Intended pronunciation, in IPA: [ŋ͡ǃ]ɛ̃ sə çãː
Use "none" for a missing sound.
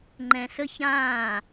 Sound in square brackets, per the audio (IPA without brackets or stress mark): ŋ͡ǃ